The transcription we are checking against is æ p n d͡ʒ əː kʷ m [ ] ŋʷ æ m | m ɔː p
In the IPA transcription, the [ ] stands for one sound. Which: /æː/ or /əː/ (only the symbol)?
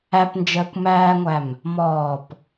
æː